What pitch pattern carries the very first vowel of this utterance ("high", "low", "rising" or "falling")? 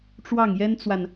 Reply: falling